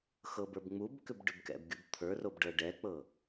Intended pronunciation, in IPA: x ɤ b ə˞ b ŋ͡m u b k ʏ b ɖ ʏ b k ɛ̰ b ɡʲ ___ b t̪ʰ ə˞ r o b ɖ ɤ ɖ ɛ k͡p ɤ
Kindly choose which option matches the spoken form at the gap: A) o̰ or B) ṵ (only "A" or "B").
B